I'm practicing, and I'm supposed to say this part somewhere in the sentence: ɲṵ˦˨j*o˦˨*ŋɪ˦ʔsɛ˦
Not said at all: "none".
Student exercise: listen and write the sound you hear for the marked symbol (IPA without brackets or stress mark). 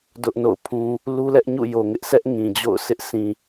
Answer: o˨